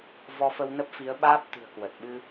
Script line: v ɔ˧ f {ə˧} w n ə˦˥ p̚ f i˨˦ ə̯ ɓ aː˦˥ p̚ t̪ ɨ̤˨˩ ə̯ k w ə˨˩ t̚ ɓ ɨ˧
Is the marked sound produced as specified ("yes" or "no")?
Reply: yes